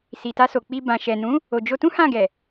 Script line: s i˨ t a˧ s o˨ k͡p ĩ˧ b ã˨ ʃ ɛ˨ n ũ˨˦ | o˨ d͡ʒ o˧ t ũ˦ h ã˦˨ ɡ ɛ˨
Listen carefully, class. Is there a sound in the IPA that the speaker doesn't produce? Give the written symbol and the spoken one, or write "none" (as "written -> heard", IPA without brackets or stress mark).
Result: ĩ˧ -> i˧